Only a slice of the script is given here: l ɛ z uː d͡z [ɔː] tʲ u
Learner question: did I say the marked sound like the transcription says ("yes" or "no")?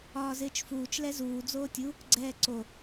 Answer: no